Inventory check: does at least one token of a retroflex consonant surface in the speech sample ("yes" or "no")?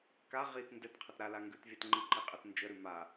no